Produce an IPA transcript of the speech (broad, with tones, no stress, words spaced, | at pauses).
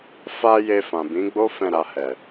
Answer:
fa˧ je˧fã˨bĩ˨˦ɡ͡bo˦ fɛ̃˦˨ɾa˧hɛ˨